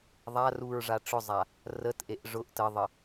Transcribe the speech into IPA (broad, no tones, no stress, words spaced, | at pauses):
ðˤaruɹʐa ʈ͡ʂʊzˤa | rətʔeʔ ʐʊʔ təðˤə